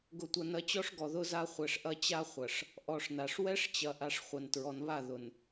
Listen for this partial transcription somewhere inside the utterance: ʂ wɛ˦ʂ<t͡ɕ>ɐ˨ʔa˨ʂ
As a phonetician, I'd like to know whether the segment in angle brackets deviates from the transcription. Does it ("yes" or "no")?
no